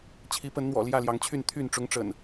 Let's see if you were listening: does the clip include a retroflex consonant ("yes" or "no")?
yes